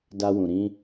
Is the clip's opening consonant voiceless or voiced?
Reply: voiced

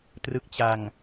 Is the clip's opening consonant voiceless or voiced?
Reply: voiceless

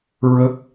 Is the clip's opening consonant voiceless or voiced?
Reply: voiced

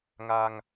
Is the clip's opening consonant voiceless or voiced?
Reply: voiced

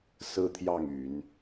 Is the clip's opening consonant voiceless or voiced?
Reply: voiceless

